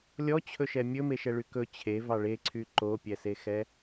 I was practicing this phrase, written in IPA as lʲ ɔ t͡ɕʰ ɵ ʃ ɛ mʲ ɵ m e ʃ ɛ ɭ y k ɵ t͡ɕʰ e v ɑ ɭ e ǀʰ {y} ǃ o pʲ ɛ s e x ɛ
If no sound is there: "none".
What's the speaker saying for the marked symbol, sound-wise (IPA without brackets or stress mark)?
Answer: y